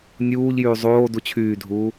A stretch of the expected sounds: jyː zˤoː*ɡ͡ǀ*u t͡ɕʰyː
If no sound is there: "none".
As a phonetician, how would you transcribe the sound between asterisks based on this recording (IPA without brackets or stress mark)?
d